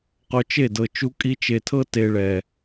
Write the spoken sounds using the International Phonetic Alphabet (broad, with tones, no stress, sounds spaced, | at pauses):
q o˧ t͡ʃ e˦˨ d ɤ˨ t͡ʃ u˧ kʼ i˧ t͡ʃ e˨ tʰ ɤ˦ t e˧ ɭ ɛ˨